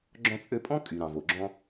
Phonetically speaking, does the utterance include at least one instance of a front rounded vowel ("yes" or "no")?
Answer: yes